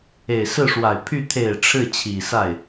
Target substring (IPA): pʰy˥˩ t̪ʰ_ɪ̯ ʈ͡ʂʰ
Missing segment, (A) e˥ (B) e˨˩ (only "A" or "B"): B